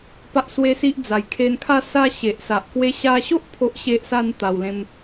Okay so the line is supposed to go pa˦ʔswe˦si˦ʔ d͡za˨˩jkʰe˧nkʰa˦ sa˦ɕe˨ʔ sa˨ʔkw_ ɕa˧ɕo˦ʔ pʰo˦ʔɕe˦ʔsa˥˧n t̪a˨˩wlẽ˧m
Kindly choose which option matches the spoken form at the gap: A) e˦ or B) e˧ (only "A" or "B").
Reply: A